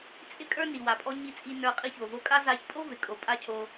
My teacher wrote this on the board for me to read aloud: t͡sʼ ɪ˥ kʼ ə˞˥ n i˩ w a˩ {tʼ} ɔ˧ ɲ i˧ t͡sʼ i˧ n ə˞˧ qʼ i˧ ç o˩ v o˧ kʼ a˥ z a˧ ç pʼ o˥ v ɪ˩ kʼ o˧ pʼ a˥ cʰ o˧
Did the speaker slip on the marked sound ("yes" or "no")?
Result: yes